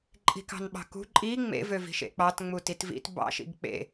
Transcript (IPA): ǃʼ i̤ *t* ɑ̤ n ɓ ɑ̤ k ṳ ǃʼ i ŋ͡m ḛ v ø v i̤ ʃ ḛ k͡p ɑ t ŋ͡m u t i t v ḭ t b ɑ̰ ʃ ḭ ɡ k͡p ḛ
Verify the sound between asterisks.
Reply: incorrect: k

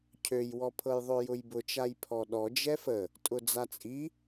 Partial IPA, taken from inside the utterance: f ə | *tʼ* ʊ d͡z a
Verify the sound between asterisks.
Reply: correct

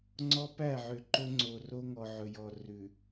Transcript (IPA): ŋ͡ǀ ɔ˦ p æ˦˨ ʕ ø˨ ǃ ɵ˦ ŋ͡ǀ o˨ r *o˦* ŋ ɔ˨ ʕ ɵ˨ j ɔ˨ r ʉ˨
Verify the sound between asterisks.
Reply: correct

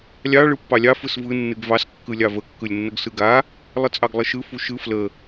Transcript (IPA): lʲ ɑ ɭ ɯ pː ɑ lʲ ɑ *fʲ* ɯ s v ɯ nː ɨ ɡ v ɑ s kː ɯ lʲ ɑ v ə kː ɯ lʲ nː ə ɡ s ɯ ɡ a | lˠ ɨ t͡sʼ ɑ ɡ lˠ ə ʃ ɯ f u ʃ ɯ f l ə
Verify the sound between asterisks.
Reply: incorrect: f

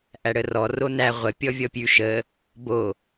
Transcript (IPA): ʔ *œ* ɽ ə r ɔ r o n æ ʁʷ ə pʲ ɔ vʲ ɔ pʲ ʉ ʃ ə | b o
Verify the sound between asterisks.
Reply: incorrect: æ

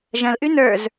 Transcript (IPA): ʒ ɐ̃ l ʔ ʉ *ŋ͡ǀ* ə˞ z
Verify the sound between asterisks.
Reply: incorrect: n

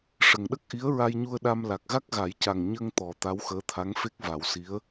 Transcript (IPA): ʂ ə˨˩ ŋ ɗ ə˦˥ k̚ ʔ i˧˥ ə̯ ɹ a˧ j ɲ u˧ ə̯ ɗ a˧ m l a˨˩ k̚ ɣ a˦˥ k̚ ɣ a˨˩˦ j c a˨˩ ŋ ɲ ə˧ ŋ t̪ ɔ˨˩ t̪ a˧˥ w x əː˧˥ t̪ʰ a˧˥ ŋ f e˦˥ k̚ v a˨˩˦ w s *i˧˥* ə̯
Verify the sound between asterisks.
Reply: correct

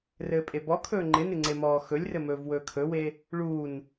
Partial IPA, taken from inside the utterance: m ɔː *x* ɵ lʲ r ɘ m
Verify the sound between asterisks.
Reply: correct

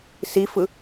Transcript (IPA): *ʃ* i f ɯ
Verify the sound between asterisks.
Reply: incorrect: s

